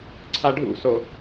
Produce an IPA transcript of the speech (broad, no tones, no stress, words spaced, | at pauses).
ǀʰaɖʱṵso